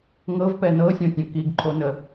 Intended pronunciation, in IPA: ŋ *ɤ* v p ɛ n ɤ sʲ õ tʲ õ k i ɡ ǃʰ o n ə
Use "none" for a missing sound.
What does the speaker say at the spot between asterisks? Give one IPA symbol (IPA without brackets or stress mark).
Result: ɤ